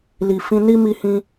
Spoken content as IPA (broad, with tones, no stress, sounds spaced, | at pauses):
l i˨ f ĩ˧ n i˦ m i˧ h ĩ˧